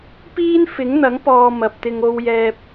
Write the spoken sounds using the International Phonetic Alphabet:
p iː˥ n f ɪ˨˥ ŋ n̪ ɐ˨˥ ŋ p ɔː˨ m ɐ˨ p̚ t̪ ɪ˧ ŋ o˧ w j ɛː˧ p̚

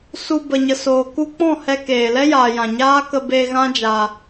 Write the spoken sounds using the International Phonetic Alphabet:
s u˨ b ə˨ ɲ ə˨ s oː˨ k u˧ k͡p ɔ̃˦˨ h ɛ˧ k eː˨ l ɛ˦ j aː˨ j ã˨ ɲ aː˦ k ə˧ b eː˧ ɣ ã˦ d͡ʒ a˧

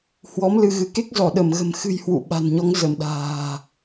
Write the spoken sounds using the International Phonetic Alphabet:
h w ɔ˨˦ m l ɨ˧ ɣ ɨ˨˦ k e˦˥ k̚ z ɔ˧˩ ɗ ə˧˩ m ɣ ə̤˨˩ m x ɨ̤˨˩ j h w ṵ˧˨ ɓ a̤˨˩ n ɲ ɔ˨˦ ŋ z ə˧˩ m ɗ a̤ː˨˩

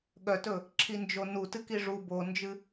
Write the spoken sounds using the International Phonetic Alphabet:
ɠ œ t ɵ | ǁʰ i n d͡ʒ o n u t ɨ k i ʐ u b o n d͡ʒ ɨ

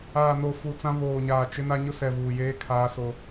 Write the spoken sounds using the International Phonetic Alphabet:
aː˨ n o˨ f u˨ t͡s ã˦ β oː˨ ɲ aː˨ t͡ʃ ɪ˦ n a˦ ɲ ʊ˦ s ɛ˨ v uː˨ j eː˦ kʰ a˦ s o˦

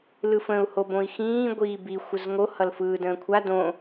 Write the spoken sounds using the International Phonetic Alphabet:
l ɯ f ə̃ u̯ h o b õ i̯ x ĩː ɡʷ iː b i xʷ ə z ŋ o h ʌ l f ɯː d ə̃ː kʷʰ a d õ

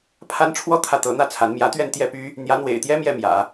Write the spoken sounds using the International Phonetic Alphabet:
pʰ a˥ n ʈ͡ʂʰ w ɔ˥˧ t̪ʰ ä˥˩ t̪ ɤ˧˥ n̪ ä˥˩ t͡sʰ a˧˥ n m j ä˧˥ t̪ ɥ ɛ˥˧ n t̪ j ɛ˥˩ p y˥ | n̪ j ä˧˥ n̪ w ḛ˨˩ ɪ̯ t̪ j ɛ˥ m j ɛ˥˩ m j ä̰˨˩˦

